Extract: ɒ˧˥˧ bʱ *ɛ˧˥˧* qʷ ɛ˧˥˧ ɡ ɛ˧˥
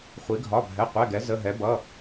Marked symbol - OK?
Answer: yes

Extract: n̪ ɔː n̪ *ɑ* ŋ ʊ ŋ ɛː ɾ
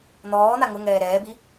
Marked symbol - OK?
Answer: no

